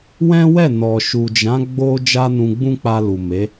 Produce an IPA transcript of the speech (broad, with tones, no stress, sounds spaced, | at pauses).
w ɛ̃˦ w ɛ˦˨ n ɔ˨ ʃ u˨ d͡ʒ ã˨˦ ɡ͡b o˦ d͡ʒ a˦ n ũ˧ ɡ͡b ũ˦ k͡p a˧ l u˨ m e˨˦